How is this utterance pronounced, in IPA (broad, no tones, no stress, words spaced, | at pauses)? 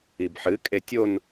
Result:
ibħɨ kʼetʲon